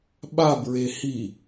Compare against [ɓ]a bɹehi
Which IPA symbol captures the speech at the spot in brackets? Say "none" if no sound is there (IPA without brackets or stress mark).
ɓ